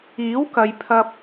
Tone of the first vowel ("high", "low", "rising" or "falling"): rising